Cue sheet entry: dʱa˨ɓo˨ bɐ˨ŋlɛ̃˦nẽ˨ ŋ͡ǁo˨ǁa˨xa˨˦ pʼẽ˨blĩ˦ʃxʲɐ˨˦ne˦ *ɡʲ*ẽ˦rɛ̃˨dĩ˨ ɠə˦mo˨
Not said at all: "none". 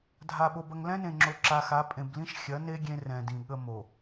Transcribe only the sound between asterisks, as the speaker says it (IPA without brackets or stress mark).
ɡʲ